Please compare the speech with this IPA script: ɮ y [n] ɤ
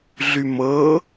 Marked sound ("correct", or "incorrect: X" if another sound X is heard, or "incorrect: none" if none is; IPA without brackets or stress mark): incorrect: m